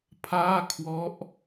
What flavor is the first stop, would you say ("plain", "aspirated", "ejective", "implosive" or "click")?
aspirated